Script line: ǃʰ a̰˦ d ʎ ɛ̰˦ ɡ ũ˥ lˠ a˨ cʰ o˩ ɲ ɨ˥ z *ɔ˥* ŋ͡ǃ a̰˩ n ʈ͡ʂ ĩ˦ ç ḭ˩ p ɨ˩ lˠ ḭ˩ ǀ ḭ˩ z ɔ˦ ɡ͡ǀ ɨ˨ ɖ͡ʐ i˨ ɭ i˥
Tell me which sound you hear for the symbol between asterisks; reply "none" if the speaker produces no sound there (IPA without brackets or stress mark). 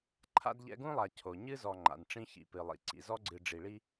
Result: ɔ˨